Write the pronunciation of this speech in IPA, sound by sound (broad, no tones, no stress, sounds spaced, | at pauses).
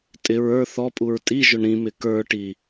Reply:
tʼ ɪ ɹ ə˞ θ ɔ pʼ u ɹ tʼ i ʒ ʊ ɳ ɾ ĩ m ɪ k ə˞ ʈ i